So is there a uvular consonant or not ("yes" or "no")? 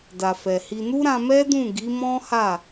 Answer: no